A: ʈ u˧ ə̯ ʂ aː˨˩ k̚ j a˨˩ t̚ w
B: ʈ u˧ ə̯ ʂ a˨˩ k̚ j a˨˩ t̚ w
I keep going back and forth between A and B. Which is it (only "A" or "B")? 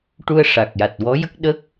B